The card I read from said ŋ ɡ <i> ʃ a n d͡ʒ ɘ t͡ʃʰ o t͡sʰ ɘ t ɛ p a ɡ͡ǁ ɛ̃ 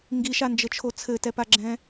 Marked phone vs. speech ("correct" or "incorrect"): correct